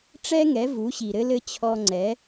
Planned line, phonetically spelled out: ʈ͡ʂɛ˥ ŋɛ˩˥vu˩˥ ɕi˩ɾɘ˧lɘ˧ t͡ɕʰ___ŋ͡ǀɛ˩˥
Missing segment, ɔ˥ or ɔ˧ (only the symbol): ɔ˧